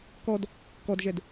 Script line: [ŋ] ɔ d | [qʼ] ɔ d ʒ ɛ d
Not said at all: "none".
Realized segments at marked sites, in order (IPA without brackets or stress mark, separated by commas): k, k